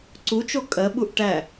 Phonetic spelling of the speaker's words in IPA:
ǀut͡ʃo kʼɜɓuʔ ʈæ

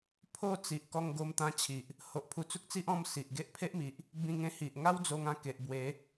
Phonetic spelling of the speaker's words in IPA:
pʰo˥˧t͡si˨ʔ kɔ˧ŋɡo˧mt̪ã˧ t͡ɕʰi˨ʔ | ho˨ʔpʰu˧t͡su˦k̚t͡si˦ʔ ɔ̃˥˧m si˨ʔɡe˦ʔ pʰe˦ʔmi˨ʔ | bĩ˧ŋẽ˧hi˨ʔ ŋa˦wd͡zo˧ŋã˧ke˨ʔ bwe˨˦

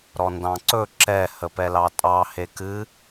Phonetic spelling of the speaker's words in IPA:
ɾɔndɑ̃ǀɵ ǁɛ həpɛlɑtʼɑ hekɨ

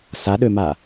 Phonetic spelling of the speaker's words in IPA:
saɗøma

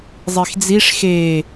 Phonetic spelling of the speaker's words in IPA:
zˤixd͡ziʂ xe

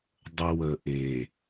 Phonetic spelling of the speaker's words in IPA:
dˤə˨w ə˨ʔe˨

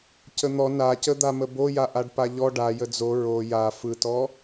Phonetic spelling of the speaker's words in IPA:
cən̪ɔ nacə d̪aməboja ʔaɖpaʎɔ ɖa jəd͡zo ɹo ja fɯtɔ

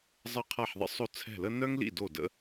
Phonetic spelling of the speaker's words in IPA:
zˤə˥˩qʰa˥˩ħðˤə̰˥ sˤo˥˩t͡sʰɛ̤˥˩lə˥ nœ˥ŋlḭ˥˩ do˥˩də̰˥

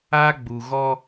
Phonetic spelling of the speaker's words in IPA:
a˦ɡ͡bu˨ɣɔ˦

